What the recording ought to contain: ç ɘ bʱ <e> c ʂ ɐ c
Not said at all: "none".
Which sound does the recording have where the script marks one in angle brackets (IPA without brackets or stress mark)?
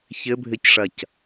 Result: ɘ